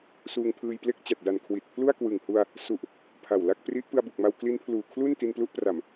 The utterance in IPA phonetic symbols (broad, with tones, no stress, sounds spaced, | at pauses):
s uː˧ ŋ pʰ ɯː˧ j p l e˥˩ k̚ t͡ɕ a˨˩ t̚ d a˨˩ n kʰ w i˨˩ t̚ pʰ l u˥˩ a̯ k w ɯ˨˩ ŋ h u˧ a̯ | s u˨˩ ʔ | pʰ a˨˩ w l a˥˩ k̚ p r i˦˥ ʔ p ɯ˧ a̯ b u˨˩ k̚ m a˧ w k l i˦˥ n pʰ l uː˨˩ kʰ l u˥˩ n t i˧ n p l u˦˥ ʔ p r a˨˩ m